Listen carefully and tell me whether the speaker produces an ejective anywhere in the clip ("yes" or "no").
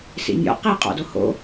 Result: yes